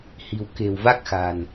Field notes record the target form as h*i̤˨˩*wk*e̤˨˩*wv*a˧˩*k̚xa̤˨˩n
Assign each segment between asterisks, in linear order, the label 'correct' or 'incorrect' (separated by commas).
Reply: correct, correct, incorrect